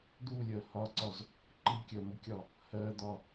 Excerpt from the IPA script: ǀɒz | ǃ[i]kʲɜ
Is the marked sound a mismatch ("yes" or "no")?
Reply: no